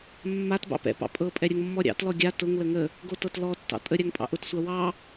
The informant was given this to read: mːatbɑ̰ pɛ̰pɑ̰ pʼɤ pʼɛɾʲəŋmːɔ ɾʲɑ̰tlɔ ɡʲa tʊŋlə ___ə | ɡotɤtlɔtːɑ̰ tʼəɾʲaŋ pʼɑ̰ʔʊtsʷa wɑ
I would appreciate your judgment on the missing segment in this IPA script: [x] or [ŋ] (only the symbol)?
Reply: ŋ